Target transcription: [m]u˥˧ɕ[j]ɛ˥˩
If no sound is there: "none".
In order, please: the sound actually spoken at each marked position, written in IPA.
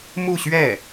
m, ɥ

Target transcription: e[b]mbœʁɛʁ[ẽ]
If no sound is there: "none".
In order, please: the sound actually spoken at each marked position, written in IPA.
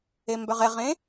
none, ẽ

